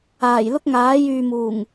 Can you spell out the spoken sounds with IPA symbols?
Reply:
aː˨˩ j l ʊ˥ k̚ ŋ aː˨˥ j yː˨ m uː˨˩ ŋ

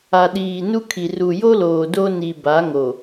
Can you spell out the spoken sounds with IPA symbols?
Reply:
a˨ ɗ iː˨ n u˦ kʰ i˨ r u˨ j o˦ l oː˨ d o˦ n i˨ b a˨˦ ŋ o˨

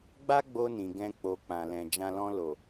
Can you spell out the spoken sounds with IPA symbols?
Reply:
ɡ͡b a˦ ɡ͡b o˧ n ĩ˨ ɡ ɛ̃˧ k͡p o˨ k͡p ã˨ l ɛ̃˨ d͡ʒ ã˧ l ɔ̃˧ l o˨

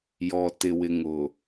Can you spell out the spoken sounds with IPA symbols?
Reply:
j ɔ˨ t ɪ˨ w ɪ˨ ŋ ʊ˨

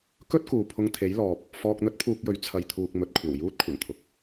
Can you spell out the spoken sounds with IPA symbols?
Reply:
k ɵ˥ t̚ k uː˨ pʰ ʊ˧ ŋ t̪ʰ e˨˥ j l ɔː˨ p̚ | f ɔː˧ k̚ n̪ ɵ˥ t̚ pʰ uː˧ k̚ j ɵ˨˥ ɥ t͡sʰ ɐ˨ j t̪ʰ uː˨ k̚ m ɵ˨ t̚ kʷʰ ɐ˨˩ w j uː˥ t̚ kʷʰ ɐ˨˩ n t̪ʰ ʊ˨ k̚

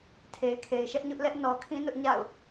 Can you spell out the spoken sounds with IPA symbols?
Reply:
tʰ e˨ ɪ̯ kʰ e˨ ɪ̯ ʃ ɛ˦ ʔ ɲ ʊ˦ ʔ l ɛ˦ ʔ n ɔ˨ kʰ ĩ˦ n ʊ˦ ʔ ɲ a̰˦˨ ʊ̯

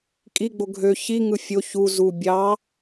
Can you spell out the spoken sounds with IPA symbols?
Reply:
kʼ i ɡ͡b o ɡʱ ø ç i ŋ ɯ fʲ o ç u z u bʲ ɑ

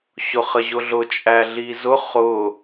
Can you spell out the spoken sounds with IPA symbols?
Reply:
ɕ ʊ χ ə ʑ ʊ ɮ ʊ t͡ʃʼ æ ɮ i z ʊ χ ʊ

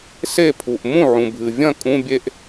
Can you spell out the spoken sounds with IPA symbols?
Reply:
s e˥˩ pʰ u˩ ʔ m ũ˥˩ ʕ ũ˩ bʱ ɨ˩ vʲ ɐ̃˥˩ kʼ ũ˧˥˧ bʲ e˥˧ ʔ

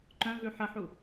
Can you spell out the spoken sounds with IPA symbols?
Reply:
ǃ œ̃ v ʉ ħ ə ħ u

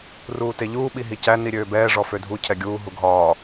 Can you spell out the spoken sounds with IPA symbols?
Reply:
r uː t e ʎ uː ɓ i ɦ i c æ n i ɾʲ øː b ɛː ʐ ɔ f ø dʱ u cʰ ɛ ɡʲ uː ɦ u ɡʱ ɒː

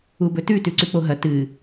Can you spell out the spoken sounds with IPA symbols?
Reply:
u b ɵ t ʉ t ʉ ǀ ʉ k͡p o ɦ ɐ t ɨ

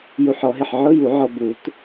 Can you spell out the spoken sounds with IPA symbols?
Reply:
j u˧ ħ ɔ˨˩˦ ɦ ɪ˧˩ ħ ʕ ʊ˧˥˧ j u˨˩˦ ʕ ɔ˧ b u˨˩˦ t

